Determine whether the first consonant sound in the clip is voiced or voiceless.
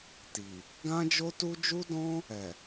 voiceless